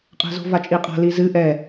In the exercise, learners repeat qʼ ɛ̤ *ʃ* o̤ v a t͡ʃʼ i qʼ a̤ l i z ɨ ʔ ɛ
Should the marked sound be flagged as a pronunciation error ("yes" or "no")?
yes